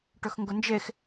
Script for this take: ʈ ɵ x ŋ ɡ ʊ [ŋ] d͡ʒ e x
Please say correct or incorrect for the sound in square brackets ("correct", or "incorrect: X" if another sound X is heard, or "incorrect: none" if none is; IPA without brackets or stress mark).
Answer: incorrect: n